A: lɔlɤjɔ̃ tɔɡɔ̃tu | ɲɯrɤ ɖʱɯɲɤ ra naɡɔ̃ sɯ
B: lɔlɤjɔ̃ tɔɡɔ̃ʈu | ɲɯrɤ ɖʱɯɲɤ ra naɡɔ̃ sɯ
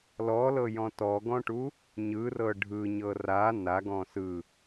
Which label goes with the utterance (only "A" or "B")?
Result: B